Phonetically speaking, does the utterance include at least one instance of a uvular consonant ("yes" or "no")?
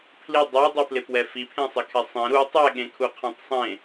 yes